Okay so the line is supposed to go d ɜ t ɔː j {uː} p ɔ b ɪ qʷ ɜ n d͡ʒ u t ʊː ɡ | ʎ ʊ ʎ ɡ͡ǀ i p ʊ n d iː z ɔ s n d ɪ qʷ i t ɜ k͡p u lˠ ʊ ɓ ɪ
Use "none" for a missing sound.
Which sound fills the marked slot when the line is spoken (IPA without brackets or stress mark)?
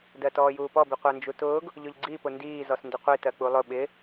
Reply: uː